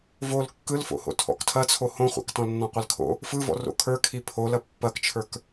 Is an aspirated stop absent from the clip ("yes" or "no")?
no